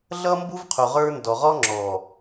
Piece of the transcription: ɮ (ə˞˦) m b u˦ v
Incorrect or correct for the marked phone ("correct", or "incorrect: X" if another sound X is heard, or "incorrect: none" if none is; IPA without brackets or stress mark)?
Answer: incorrect: ʌ˦